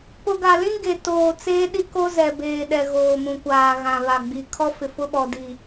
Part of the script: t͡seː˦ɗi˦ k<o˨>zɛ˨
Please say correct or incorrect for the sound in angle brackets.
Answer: incorrect